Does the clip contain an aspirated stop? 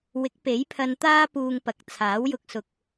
yes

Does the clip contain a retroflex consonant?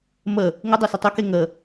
no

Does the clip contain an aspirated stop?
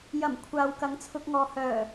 yes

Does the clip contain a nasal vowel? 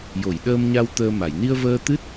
no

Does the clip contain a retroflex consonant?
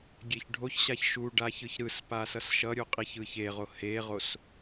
yes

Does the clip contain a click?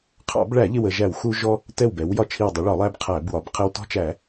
no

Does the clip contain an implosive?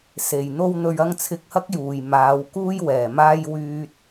no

